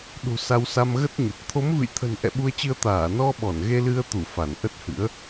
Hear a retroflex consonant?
no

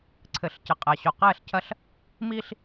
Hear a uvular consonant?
yes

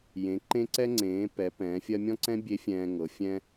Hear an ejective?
no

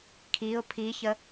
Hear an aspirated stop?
yes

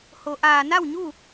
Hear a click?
no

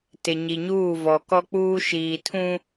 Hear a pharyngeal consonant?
no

